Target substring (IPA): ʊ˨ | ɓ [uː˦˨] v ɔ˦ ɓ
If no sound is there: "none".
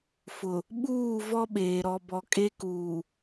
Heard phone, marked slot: uː˦˨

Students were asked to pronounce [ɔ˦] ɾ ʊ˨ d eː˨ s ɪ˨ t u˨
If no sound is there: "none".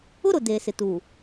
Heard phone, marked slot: ʊ˦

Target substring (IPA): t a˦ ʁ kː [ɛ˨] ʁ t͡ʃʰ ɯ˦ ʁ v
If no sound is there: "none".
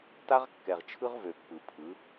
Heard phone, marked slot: ɛ˨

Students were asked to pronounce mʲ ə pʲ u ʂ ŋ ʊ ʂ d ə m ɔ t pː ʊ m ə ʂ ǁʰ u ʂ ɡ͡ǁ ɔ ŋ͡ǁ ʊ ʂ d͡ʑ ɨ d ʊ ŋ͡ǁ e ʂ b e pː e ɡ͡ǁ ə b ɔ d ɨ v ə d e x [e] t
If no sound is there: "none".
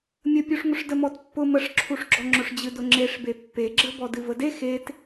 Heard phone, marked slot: e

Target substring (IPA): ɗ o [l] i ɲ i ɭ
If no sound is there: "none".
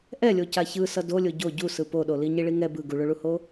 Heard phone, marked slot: l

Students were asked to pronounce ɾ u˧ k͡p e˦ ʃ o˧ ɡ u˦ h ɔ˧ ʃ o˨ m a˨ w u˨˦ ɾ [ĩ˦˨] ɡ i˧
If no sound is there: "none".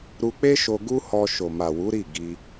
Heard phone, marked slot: i˦˨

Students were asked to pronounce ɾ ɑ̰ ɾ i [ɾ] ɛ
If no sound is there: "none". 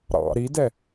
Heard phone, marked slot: d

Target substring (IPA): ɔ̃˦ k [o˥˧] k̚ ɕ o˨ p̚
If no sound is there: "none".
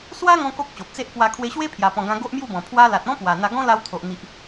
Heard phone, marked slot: o˦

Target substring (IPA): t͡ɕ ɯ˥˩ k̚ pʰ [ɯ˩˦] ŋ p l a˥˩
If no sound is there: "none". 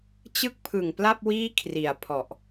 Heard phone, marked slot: ɯ˨˩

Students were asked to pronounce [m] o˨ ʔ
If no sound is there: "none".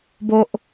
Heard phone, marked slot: b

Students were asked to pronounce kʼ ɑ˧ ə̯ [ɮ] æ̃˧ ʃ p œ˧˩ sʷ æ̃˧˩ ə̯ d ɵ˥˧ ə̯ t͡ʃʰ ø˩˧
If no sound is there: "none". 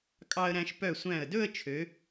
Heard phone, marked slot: ɾ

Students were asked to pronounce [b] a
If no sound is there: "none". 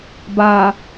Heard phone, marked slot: b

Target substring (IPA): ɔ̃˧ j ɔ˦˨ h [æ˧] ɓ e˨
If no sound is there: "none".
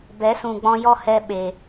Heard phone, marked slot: ɛ˧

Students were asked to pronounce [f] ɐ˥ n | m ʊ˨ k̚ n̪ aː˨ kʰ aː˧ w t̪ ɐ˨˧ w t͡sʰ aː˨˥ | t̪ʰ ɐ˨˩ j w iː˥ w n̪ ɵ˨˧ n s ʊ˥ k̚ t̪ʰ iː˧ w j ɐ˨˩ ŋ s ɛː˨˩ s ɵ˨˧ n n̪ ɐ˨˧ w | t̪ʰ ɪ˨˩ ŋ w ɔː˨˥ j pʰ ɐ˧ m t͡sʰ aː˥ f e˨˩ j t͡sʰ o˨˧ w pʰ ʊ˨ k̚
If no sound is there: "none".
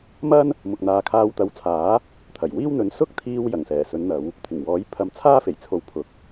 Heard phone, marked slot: m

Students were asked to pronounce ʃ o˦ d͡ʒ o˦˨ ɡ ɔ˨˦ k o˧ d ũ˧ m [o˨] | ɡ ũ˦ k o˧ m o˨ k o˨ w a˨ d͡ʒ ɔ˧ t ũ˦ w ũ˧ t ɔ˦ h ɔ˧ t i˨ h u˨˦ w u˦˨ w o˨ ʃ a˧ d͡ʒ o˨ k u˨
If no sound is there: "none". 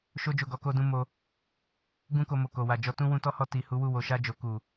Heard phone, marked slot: o˧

